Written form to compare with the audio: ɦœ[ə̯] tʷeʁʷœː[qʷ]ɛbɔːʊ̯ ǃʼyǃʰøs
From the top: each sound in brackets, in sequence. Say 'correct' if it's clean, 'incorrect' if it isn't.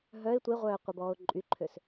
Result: incorrect: ɪ̯, correct

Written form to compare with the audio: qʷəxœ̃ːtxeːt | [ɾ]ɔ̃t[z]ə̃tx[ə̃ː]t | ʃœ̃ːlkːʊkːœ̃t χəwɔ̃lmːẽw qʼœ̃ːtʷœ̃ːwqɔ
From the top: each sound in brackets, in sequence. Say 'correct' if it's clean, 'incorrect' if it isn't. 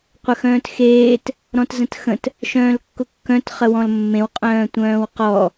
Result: correct, correct, incorrect: ə̃

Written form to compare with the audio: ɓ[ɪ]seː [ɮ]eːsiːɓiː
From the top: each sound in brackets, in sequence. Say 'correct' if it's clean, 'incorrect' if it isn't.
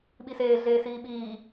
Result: incorrect: i, correct

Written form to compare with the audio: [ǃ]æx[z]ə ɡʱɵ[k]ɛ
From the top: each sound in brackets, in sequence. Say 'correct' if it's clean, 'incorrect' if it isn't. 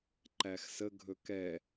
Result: correct, incorrect: s, correct

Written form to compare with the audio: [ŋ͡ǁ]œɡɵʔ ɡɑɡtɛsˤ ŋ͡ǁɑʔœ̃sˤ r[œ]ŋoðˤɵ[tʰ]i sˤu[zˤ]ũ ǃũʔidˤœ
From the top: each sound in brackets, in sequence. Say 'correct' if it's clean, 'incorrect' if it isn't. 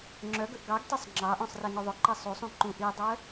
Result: correct, incorrect: ɛ, incorrect: ǃ, incorrect: sˤ

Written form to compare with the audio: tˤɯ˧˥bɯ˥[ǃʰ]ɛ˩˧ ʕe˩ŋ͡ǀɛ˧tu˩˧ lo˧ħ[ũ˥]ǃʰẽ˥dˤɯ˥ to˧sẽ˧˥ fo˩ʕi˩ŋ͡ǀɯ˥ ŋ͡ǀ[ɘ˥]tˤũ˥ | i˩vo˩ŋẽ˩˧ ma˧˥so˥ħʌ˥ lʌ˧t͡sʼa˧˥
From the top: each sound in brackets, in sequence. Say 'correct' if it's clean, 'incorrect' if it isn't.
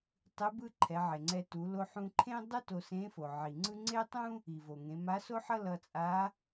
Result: correct, incorrect: ũ˧, incorrect: e˥

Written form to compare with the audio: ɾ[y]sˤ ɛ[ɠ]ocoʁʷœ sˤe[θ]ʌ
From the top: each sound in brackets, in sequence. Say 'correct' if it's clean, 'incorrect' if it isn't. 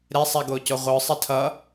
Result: incorrect: e, incorrect: ɡ, incorrect: tʰ

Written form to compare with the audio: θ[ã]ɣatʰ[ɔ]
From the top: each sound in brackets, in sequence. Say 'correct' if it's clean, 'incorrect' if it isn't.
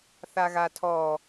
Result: incorrect: a, correct

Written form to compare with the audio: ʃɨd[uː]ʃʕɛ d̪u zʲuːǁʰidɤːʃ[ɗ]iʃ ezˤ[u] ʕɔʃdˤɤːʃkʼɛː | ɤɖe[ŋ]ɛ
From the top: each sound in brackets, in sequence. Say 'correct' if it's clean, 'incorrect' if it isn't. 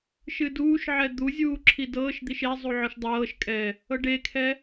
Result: correct, incorrect: d̪, correct, incorrect: kʰ

